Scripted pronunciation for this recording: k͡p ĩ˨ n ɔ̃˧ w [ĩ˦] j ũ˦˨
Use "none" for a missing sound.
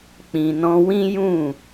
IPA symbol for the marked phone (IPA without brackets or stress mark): ĩ˦